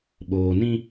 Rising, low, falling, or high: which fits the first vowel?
low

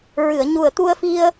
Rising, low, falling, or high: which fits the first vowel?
low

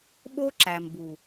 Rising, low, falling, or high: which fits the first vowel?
high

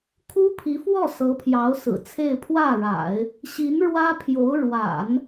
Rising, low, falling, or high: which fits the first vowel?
high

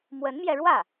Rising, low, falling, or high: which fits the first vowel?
rising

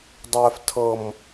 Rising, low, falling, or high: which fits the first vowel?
low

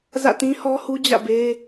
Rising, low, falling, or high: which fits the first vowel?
falling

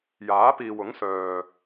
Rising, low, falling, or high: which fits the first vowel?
rising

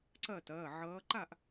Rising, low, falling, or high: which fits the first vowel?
falling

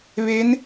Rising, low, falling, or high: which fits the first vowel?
rising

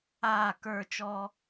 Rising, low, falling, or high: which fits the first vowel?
falling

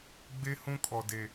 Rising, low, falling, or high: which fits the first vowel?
high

